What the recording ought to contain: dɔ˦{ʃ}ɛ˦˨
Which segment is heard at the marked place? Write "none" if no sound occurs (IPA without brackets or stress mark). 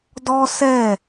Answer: s